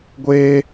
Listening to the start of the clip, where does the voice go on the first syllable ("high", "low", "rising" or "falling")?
high